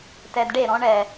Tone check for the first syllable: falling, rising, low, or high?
low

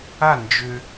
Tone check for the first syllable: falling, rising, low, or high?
falling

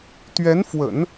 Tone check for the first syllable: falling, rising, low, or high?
rising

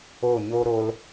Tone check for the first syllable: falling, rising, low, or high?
falling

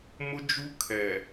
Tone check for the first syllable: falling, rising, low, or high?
high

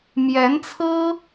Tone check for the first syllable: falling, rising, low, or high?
rising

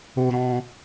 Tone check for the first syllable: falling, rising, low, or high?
high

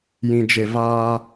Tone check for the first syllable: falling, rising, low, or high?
low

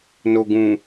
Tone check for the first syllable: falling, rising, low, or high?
low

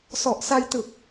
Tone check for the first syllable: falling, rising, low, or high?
low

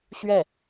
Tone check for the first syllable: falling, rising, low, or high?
falling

